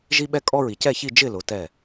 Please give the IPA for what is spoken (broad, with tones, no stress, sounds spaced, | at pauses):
ʒ i˦ ɓ ɛ˦ kʼ ɔ˦ ɹ i˩˧ c ɛ˥˨ ç i˥˨ d͡ʒ ɪ˥˨ l ʊ˩˧ t ɛ˧˩